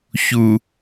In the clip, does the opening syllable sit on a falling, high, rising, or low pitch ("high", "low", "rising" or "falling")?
low